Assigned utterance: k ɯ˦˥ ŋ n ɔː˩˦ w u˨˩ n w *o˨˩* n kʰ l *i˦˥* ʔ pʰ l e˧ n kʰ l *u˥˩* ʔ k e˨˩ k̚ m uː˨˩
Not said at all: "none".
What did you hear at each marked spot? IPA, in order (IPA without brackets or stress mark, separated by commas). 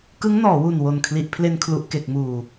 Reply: o˨˩, i˨˩, u˨˩